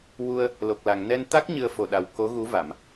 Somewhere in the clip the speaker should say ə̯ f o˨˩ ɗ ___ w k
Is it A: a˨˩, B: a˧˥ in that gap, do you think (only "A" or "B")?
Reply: A